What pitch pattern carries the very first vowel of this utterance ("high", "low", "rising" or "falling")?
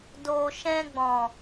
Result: low